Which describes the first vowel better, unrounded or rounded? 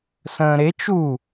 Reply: unrounded